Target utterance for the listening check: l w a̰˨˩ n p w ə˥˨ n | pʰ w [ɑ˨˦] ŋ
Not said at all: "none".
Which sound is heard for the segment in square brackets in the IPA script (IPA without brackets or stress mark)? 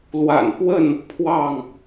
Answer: ɑ˥˨